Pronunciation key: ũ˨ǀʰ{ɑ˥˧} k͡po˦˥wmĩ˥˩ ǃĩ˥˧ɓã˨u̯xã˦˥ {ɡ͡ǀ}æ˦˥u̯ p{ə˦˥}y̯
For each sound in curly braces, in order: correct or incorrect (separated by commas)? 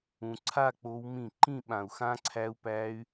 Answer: incorrect, incorrect, incorrect